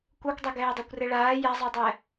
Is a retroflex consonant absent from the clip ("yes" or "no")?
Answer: no